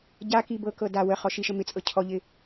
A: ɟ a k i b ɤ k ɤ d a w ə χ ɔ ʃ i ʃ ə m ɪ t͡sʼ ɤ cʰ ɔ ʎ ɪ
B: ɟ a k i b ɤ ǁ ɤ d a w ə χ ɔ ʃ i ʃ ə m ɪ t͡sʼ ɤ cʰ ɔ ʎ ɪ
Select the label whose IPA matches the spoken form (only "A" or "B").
A